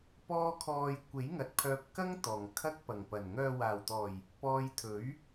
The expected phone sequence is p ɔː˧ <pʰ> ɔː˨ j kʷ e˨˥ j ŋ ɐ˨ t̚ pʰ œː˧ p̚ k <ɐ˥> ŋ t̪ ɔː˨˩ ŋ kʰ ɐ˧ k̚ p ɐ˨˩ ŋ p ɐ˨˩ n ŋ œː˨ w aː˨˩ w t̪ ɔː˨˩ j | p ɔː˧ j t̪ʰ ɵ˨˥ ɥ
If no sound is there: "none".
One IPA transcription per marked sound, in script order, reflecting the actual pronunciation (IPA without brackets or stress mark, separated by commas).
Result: kʰ, ɐ˥